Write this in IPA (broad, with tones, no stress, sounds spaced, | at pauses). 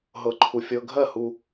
ɦ ɤ˧ ǃʰ u˨˥ fʲ ɤ˧˥˧ ɡʱ ɜ˥˩ h u˧